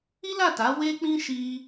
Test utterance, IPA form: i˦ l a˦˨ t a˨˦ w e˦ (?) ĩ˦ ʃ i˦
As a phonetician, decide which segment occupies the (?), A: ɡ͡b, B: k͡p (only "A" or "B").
B